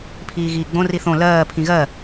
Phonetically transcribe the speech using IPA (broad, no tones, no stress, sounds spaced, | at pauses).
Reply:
pʰ iː ɣ iː ɡ͡b õ r i θ õ l ɜː pʰ ĩ ɣ ɜ